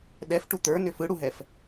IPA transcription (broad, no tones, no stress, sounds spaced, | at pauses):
ɗ ɛ f ʈ u t̪ ə˞ n ʏ f ɯ ɽ u ɦ ɛ f